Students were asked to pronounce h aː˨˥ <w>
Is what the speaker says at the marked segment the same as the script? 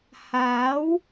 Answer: yes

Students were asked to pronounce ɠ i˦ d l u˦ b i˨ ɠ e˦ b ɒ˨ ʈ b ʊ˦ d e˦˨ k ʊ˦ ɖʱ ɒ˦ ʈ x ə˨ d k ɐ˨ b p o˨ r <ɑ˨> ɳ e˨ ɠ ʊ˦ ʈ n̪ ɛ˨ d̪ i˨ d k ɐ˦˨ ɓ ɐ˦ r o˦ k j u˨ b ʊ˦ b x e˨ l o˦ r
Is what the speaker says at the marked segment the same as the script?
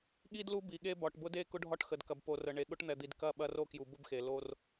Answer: no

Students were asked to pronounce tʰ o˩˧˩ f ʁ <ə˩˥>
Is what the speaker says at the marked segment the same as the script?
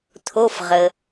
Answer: no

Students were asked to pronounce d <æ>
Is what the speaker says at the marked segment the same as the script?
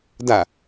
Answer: no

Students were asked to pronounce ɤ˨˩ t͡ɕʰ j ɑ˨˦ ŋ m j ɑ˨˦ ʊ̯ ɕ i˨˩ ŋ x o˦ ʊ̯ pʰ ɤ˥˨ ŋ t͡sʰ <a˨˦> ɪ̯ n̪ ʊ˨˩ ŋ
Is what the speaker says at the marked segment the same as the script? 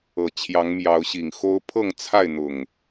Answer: no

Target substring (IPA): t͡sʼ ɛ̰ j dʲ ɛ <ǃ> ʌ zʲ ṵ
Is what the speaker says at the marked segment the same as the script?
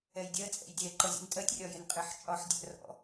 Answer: yes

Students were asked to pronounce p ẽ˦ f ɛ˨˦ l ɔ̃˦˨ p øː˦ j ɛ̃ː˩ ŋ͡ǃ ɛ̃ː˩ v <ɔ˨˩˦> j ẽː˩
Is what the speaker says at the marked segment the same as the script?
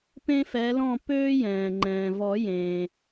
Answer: yes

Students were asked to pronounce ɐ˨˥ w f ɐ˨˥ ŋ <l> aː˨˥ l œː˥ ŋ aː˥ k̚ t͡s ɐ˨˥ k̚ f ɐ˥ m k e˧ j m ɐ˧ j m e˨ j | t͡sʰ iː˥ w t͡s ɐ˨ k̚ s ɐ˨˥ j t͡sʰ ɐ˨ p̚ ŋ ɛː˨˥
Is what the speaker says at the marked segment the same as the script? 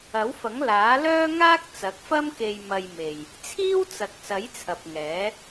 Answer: yes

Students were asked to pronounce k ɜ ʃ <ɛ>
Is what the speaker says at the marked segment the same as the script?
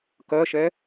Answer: yes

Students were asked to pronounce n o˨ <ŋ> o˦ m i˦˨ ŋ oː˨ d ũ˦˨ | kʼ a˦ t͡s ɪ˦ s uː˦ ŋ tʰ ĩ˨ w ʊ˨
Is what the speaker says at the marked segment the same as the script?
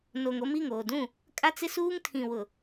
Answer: yes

